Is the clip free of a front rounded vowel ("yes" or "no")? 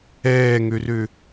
no